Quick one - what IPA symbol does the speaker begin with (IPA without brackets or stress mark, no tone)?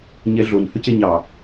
ɲ